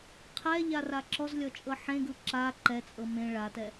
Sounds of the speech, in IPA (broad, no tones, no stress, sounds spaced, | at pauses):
qʰ ɛ ʎ a r a ǁ ɔ z lʲ ɔ t͡ʃʼ ɤ ħ ẽ ɡ ɯ ǁ a ǃ ɛ t͡sʼ ɤ m ẽ ɭ a t ɛ